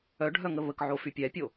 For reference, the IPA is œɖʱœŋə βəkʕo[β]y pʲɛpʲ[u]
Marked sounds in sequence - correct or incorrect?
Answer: incorrect: f, incorrect: o

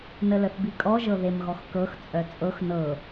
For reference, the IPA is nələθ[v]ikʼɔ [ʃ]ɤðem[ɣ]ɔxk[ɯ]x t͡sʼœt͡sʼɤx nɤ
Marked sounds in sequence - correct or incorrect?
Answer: incorrect: b, incorrect: ʒ, correct, incorrect: ɤ

